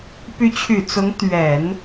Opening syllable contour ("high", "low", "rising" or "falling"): rising